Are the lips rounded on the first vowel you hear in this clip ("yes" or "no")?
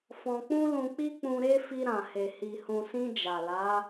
yes